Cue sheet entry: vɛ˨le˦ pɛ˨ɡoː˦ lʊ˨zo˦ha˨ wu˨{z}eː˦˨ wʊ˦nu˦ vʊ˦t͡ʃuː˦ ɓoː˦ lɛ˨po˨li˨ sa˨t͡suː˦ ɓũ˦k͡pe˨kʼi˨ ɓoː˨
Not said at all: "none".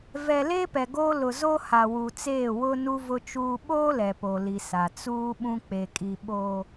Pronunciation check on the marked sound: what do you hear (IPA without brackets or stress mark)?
t͡s